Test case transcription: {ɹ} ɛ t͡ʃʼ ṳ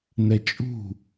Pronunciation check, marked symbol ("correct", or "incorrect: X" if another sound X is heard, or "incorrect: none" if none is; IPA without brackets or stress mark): incorrect: n̪